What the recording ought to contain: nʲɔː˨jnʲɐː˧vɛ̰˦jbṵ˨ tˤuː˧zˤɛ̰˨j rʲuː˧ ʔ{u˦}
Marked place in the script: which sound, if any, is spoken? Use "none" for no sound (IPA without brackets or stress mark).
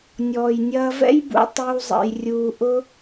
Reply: ʊ˦